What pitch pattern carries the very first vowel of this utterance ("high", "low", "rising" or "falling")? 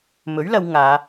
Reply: rising